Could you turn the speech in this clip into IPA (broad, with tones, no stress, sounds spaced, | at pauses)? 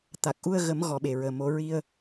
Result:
t̪ a˨˩ k̚ ʔ u˧ ə̯ ɣ ə˨˩˦ m ɣ ɔ˨˩˦ ɓ e˨˩˨ ɹ əː˨˩ m o˨˩˦ ɹ i˧ ə̯